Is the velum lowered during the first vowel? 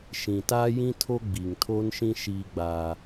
yes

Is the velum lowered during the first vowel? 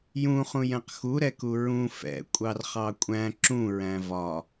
yes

